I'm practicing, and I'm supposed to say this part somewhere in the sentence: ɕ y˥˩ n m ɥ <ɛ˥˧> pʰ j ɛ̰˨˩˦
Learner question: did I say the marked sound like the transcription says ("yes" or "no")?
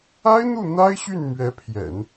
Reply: no